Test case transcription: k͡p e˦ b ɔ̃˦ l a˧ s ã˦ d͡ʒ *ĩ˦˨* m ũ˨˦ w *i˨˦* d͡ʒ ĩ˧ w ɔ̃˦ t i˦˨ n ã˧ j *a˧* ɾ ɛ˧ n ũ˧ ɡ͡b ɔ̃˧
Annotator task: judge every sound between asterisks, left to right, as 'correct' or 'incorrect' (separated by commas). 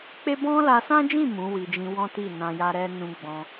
correct, incorrect, correct